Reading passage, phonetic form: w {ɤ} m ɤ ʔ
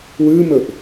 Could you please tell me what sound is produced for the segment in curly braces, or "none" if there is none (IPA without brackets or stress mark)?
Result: ɯ